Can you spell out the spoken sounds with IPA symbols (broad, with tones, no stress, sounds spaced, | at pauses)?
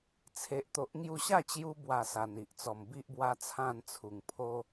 t͡sʰ e˨ ʔ t̪ o˨ ʔ ŋ j u˧ ɕ a˥˧ t͡ɕ j u˧ b w a˨˩ s a˨˩ n i˨ ʔ t͡s ɔ˨˩ m b i˦ ʔ b w a˦ t͡sʰ ã˥˧ n t͡sʰ u˨˩ ŋ pʰ o˦